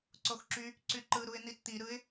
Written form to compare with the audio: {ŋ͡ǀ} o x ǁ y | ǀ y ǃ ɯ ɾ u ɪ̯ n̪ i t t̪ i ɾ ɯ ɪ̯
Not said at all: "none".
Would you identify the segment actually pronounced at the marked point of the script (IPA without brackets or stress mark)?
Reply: ǀ